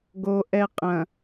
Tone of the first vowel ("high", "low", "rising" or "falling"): low